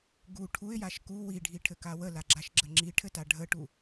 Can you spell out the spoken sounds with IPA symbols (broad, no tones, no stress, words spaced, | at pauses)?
ɡu ʈʰuɪ̯jaʃ ku wiɖʱiʈʰɘka wəlaɡ͡ǁaʃɡ͡ǁə ŋ͡ǁiʈʰɘta ɖʱəʈu